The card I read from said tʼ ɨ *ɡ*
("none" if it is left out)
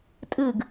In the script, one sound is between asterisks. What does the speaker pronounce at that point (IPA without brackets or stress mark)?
ɡ